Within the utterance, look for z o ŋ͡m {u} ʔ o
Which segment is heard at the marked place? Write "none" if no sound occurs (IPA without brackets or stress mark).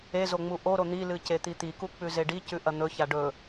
u